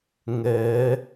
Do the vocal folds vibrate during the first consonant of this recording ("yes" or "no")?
yes